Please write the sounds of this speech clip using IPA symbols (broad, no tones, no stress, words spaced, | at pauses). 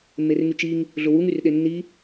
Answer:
mːerŋyt͡ʃiŋ | ɮʊwuŋ yrɗenːi